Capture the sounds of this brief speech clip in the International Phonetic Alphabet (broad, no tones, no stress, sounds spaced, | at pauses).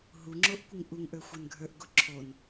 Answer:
ɦ u ŋ͡ǁ o ʔ kʷ ə ŋ ʔ u ŋ ʔ ə˞ xʷ ə˞ n ɡʱ ə˞ ʔ ɡ o ǁʰ o n